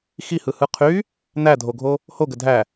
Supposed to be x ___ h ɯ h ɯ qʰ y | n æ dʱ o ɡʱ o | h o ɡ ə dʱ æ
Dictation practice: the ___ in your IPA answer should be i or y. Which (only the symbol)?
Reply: i